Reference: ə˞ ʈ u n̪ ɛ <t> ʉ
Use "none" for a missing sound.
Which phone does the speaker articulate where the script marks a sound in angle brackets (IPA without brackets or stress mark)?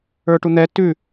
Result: t